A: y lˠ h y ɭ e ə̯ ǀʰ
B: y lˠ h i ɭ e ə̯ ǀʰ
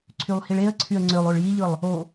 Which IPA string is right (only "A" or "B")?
B